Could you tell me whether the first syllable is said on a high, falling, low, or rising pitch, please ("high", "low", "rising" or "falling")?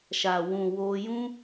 low